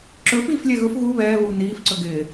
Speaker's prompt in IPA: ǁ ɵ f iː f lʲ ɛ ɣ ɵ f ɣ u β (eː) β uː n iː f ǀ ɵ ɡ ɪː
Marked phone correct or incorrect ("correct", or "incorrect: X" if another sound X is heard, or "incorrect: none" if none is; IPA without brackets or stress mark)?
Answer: incorrect: ɛː